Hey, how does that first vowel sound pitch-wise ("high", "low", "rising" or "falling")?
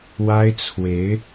high